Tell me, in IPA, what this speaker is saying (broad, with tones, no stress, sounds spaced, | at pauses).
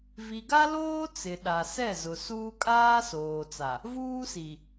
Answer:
v i˨ ɡ a˦ l oː˦ t͡s ɪ˨ ɗ a˨ s ɛ˦˨ z ʊ˨ s uː˦ kʼ aː˦ s oː˨ t͡s a˨ | v uː˦ s i˨